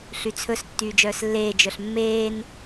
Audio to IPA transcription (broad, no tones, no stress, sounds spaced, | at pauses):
ɬ y t͡sʰ ɵ s tː yː d͡ʒ œː s lː eː d͡ʒ œ ɬ mː eː n